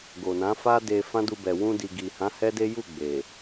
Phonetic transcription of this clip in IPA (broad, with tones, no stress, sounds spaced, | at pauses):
ɡ o˨ n ã˨˦ f a˦ d e˧ f ã˦ d u˧ b ɛ˨ w ũ˧ d i˨ ɡ i˨ h ã˨˦ h ɛ˦ d e˦ j u˦˨ ɡ͡b e˨